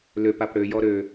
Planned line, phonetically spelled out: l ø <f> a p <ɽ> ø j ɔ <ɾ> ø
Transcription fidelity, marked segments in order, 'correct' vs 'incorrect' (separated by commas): incorrect, correct, correct